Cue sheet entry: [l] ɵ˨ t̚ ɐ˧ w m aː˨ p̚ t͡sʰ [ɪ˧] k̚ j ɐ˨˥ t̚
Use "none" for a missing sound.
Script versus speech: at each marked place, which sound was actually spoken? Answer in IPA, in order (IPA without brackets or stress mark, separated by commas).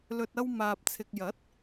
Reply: l, ɪ˨